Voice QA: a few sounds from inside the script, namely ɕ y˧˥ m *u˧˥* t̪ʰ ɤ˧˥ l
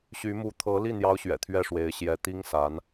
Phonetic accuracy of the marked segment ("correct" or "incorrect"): correct